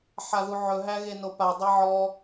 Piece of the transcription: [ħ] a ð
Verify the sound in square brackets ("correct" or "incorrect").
correct